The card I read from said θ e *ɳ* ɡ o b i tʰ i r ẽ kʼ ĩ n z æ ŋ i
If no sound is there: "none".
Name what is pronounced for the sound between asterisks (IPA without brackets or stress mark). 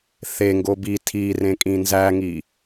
ŋ